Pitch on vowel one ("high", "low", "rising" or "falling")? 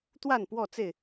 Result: falling